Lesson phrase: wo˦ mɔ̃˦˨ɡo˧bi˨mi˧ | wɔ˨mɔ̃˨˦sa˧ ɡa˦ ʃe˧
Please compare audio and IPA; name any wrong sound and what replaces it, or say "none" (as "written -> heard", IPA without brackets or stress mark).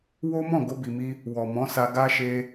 none